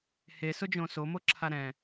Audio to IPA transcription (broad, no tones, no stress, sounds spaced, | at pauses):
h e s ʊ d͡ʒ õ s o m o ǁʰ a ɾ ɛ̃